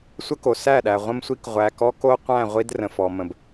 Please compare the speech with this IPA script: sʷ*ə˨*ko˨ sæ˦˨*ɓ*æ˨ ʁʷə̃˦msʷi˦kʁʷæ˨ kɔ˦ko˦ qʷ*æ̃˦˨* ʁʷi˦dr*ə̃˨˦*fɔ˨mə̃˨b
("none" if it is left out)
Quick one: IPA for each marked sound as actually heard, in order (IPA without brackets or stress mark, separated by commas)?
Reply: ə˦, ɗ, æ̃˦˨, ə̃˨